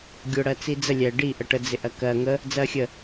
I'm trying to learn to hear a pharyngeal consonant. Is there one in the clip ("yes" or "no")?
no